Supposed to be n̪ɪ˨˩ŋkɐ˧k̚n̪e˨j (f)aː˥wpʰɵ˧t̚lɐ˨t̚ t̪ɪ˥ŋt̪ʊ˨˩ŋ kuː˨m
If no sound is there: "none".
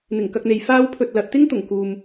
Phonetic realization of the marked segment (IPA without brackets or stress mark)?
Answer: f